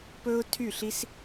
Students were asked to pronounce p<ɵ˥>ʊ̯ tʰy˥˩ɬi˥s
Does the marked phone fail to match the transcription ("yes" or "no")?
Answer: no